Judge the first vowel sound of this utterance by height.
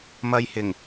low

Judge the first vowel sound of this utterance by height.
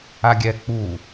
low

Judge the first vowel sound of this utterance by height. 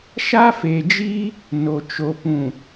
low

